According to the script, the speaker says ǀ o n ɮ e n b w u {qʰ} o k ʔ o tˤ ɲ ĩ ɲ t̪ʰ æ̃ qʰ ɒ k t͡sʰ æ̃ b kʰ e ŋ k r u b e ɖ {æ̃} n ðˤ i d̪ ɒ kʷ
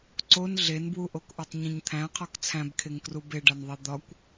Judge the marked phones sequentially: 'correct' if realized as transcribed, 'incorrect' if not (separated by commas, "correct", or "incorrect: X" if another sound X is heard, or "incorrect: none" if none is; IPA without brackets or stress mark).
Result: incorrect: ʔ, incorrect: æ